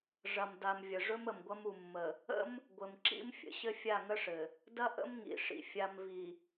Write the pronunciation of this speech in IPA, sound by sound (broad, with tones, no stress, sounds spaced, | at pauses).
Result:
ʐ ɐ˨ m d a˨ m vʲ ə˨ ʐ ɵ˦ m ə˨ m ɡʷ ɐ˦ m u˨ mː ə˨ | ə̰˦ m | ɡʷ ɘ˨ m ǁ ḭ˦ m fʲ ə̰˨ ɕ ɘ˦ fʲ a˦˨ ŋ ə˦ ʂ ɘ˨ | d ɐ˦ ʔ ə̰˦ m ŋ ḭ˨ ʂ ḭ˨ fʲ a˨ m v i˨